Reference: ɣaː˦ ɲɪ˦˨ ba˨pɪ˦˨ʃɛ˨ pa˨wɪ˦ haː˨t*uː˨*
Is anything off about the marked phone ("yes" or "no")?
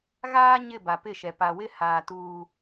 no